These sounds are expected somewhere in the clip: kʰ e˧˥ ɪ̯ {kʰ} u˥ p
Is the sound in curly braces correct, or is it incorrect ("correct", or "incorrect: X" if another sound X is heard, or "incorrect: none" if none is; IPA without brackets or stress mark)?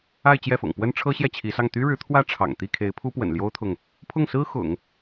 incorrect: pʰ